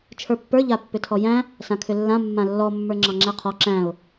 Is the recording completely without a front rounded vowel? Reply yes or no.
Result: no